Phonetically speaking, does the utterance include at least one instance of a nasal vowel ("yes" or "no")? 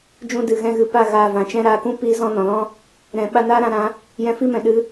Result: yes